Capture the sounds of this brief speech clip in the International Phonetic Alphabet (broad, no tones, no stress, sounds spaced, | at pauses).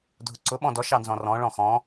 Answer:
dʱ ʊ ǀ ʊ ɓ ɔ̃ d ɔ ʃ ɑ n z ɔ̃ r ɔ̃ ɭ ɔ̃ x ɔ̃